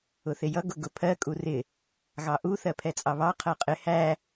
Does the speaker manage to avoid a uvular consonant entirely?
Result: no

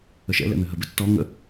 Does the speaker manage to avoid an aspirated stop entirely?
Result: yes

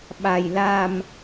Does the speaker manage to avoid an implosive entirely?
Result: no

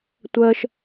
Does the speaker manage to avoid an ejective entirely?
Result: yes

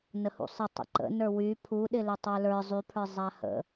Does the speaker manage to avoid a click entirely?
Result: no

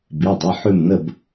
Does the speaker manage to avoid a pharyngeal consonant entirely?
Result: no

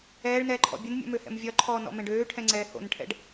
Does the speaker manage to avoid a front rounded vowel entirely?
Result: no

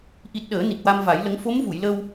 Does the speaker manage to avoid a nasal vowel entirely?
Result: yes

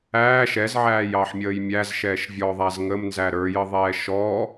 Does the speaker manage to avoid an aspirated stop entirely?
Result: yes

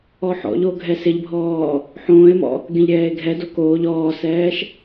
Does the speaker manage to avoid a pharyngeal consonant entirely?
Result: no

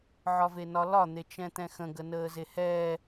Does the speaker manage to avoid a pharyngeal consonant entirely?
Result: no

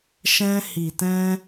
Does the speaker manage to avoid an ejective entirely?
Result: yes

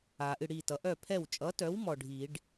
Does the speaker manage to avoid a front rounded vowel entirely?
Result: no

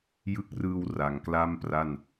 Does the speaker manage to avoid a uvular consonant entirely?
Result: yes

